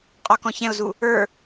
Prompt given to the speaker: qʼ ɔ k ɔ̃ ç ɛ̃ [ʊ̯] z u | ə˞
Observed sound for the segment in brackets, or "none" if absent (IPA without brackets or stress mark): ʊ̯